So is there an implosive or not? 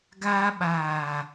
yes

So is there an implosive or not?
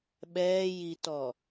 yes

